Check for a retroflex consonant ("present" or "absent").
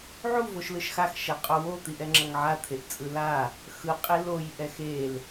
absent